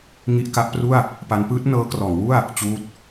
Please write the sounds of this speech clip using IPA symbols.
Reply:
ŋ i˦˥ ʔ k a˦˥ ʔ p r u˥˩ a̯ | p a˦˥ n p ɯː˦˥ t̚ n ɤː˦˥ k r ɔː˩˦ ŋ w u˥˩ a̯ | t͡ɕ uː˦˥ t̚

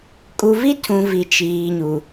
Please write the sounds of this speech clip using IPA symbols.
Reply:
kʼ u˨ v i˦ tʰ ũ˨ v i˨ t͡ʃ iː˨ ɲ u˨

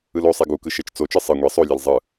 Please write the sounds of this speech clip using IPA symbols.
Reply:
ɯ l o sˤ ɛ ɡ u k ɯ ʃ e t͡ʃ t͡s o t͡ʃ ɯ sˤ ɯ ŋʷ e sˤ o lʲ e l zˤ ɯ

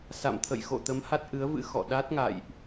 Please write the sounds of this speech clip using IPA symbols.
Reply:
s a̰˧˨ m t̪ʰ ə̰˧˨ j x o̰˧˨ t̪ ə˨˦ m h a˦˥ t̚ ʔ ɨ˨˦ ə̯ v ɨ̰˧˥ x ɔ̰˧˨ ɗ a˦˥ t̚ ŋ a̰˧˨ j ʔ

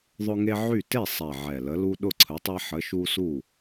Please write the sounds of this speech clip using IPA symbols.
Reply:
ðˤ ʊ˦ ŋ e˦ ʕ y˥˩ t e˥˩ sˤ ɛ˨˩ ʕ ɛ˨˩ l ə˨˥ l u˦ ɗ ʊ˥˩ ǀʰ ə˨˥ tˤ ɛ˦ ħ ə˨˥ ʃ u˦ s u˥˩

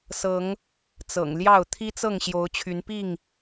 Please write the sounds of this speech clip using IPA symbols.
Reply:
s ɤ˨˦ ŋ | t͡s ɤ̰˨˩ ŋ l j ɑ˥˨ ʊ̯ t̪ʰ i˦ t͡s ɤ˥˨ ŋ ɕ j o˨˦ ʊ̯ t͡ɕʰ y˨˦ n p i˥˨ ŋ

